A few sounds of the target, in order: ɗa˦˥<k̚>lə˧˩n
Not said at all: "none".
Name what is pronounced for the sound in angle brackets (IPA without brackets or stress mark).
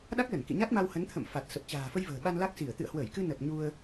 k̚